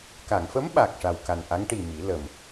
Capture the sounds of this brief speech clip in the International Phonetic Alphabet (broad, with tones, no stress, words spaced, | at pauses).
ka˨˩˨ŋfə˧˥m ɓa˨˩k̚ʂa˨˩wka˨˩nʔa˧˥ŋ ʈi˨˩ mi˨˩˦lə˨˩m